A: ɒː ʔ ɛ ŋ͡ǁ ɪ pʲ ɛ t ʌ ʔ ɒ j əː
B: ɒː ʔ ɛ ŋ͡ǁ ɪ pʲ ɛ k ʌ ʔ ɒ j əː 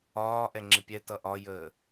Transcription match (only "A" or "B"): A